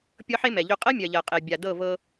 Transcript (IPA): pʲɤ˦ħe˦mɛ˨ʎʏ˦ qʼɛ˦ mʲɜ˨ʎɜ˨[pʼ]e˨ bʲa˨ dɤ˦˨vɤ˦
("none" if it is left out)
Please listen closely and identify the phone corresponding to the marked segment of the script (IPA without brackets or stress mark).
qʼ